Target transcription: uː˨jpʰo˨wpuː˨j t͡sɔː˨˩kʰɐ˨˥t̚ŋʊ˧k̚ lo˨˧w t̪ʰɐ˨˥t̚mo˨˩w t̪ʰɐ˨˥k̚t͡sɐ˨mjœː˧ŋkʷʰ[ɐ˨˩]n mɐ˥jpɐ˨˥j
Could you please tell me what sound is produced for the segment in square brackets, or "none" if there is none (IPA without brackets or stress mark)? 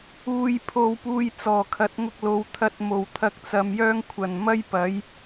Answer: ɐ˨˩